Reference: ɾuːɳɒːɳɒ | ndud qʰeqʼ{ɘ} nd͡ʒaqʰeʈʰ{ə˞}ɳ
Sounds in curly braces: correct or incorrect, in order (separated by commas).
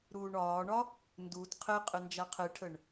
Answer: correct, incorrect